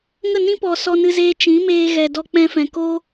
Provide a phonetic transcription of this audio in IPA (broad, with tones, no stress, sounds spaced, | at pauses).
ŋ ə˦˨ n ĩ˦ p ɔ˨ s ɔ˧ n ɨ˧ z eː˧ t͡ʃ ĩ˨˦ m eː˧ ɣ ɛ˨ d ɔ˧ k͡p ɛ̃˧ f ɛ̃˨ k o˦